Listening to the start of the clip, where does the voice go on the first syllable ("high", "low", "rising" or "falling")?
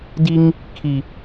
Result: high